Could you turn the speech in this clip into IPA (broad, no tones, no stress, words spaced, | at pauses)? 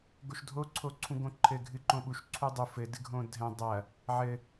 ɡoʃdʱo ǀʰoǀʰũɡõǃʰɘ ɡʱɨǃõɓuʃ ǀʰudˤu fɘ dɨɡʱõdʱɛ̃ dˤɐ | ʕɘ